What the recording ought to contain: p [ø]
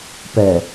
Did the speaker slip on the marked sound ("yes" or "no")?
yes